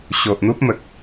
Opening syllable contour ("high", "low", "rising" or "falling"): low